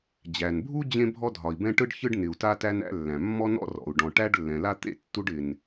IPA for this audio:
d͡ʑ æ˩ n bʱ u˥ d͡ʑ ẽ˥ bʱ ɔ˥ dʱ ɒ˩ i̯ b ɛ̃˥ ʈ ɯ˥ ɖ ç ɯ˥ ɖ n ɪ˩ u̯ t a˥ t æ˥ n æ̰˥ lː æ̃˩ mː ɔ˥ n ɔ̰˥ r ɔ̰˩ u̯ ɖ ɔ̃˩ ʈ æ˥ ɖ lː ɛ̃˩ l a˥ t̪ ḛ˥ tː u˥ ɖ ɪ˩ n

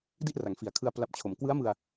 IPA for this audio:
d i˥˩ ʔ r a˩˦ ŋ f i˨˩ a̯ kʰ ɯ˧ a̯ p l a˨˩ p̚ t͡ɕʰ o˩˦ m k w ɯ˦˥ a̯ m ɯ˧ a̯

